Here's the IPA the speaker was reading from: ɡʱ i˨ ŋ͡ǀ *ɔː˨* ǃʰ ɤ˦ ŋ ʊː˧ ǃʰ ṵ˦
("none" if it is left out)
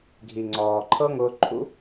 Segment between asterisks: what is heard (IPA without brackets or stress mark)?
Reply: ɔː˨